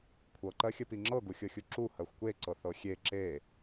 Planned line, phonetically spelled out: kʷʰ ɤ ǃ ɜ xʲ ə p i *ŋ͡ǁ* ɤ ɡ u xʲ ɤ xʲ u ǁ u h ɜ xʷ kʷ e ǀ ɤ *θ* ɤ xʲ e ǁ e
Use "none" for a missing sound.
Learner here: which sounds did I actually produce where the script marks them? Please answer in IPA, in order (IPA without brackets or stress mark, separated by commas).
ŋ͡ǁ, θ